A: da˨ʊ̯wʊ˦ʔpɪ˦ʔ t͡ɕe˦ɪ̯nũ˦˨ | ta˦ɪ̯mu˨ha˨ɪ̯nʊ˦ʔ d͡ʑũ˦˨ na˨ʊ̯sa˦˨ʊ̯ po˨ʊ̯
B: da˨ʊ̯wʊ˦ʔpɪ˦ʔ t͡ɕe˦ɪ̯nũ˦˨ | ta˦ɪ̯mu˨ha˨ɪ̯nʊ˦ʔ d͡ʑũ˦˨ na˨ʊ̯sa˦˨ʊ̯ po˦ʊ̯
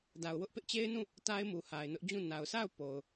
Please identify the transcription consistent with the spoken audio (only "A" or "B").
A